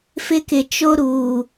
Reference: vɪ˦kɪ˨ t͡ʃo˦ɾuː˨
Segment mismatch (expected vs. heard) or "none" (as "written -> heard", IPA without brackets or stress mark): v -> f